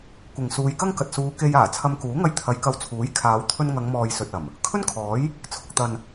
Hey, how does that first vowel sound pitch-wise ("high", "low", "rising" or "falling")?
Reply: low